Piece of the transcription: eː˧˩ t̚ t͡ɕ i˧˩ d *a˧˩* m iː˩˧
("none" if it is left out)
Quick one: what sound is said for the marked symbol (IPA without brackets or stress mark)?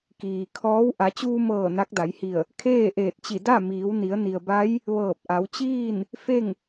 a˥˨